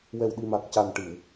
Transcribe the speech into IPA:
wɛ˨˩wɗi˨˩ma˨˩k̚ ca˨˩n ʈɨ˨˩˨w

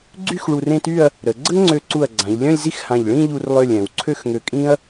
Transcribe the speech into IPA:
ɡ͡ǀy˥˧x ɭu˧rẽ˥˧ty˥˧ɐ̯ | ɾə˩˧ ɡ͡ǀə˥ŋŋ͡ǀø˧ǀu˧˩ɐ̯ɡ͡ǀã˩˧ʎ lʲœ̃˥˧lʲzi˥˧xhã˧˩ʎ ɭĩ˥˧ʎu˧rlˠø˧˩lʲ ɛ̃˩˧wǀʰø˥˧xŋø˧kʼĩ˥ɐ̯

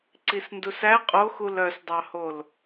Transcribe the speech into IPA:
ǀisndusæ qʼoxul œsdˤɑhol

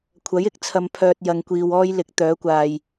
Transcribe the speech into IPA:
kʷʰɐ˨˥jɪ˧k̚ t͡sʰɐ˧mpʰœː˧t̚ jɐ˨ŋkʷiː˨wɔː˧j lɪ˨˥k̚t̪œː˨˥kʷaː˨j

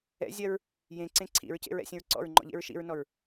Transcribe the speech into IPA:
ɛ̰zʲɜɹ | jẽǀẽ ǀʰḭɹcḛɹɛ̰sʲə̃ɹ ǀɔ̰ɹŋ͡ǃɔ̰ʎḛɹ ʃḭɹnɔɹ

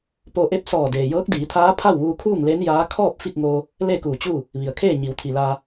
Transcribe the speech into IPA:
po˧ʔe˥˨p̚ sɔː˧˩ deː˩jɤː˧˥k̚diː˩˧t̪ʰaː˧˥ pʰa˥˨wʋuː˧kʰuː˥˨ŋ le˧˥njaː˧˥ kʰɔː˥˨p̚ fi˥˨k̚ŋoː˧ | le˥˨kuː˧˩t͡ɕuː˥˨ | ʋi˩ə̯kʰeː˥˨ ɲi˩˧wt̪ʰi˩laː˧

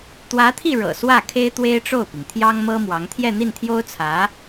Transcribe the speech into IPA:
t̪wä˧˥t̪ʰi˥˩ ɻɤ̰˨˩swä˥˩ kʰe˥ɪ̯t̪we˥ɪ̯ʈ͡ʂo˥˩ʊ̯pi˩ŋ t̪ʰjɑ˥ŋmɤ˥mwɑ˧˥ŋ t̪ʰjɛ˥˧n̪i˥˩nt̪ʰjo˥ʊ̯t͡sʰä˧˥

